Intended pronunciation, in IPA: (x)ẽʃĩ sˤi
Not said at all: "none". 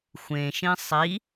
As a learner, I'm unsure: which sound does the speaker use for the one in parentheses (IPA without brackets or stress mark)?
xʷ